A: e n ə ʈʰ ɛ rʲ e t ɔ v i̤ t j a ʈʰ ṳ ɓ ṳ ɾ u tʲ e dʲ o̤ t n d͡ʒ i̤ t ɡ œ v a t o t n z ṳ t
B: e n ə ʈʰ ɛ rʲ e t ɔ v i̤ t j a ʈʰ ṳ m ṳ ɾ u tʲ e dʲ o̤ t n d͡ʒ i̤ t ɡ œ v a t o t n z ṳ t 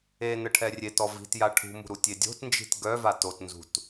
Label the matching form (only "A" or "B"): B